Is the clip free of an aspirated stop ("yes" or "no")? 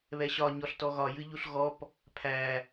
no